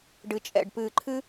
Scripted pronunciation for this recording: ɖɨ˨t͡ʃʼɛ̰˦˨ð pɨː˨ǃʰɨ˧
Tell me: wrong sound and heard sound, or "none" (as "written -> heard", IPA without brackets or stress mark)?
ð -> ɖ